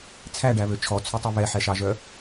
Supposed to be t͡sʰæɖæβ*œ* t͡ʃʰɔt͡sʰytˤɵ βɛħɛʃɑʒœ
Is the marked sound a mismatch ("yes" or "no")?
yes